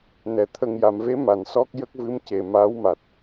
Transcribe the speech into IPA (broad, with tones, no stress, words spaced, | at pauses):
nɛ˨˩ t̪ʰə˨˩ŋja˨˩˨mve˧˥ ma˨˩˨nsɔ˦˥k̚jə˦˥k̚vɨ˧˥m ce˨˩maː˧˥wma˨˩t̚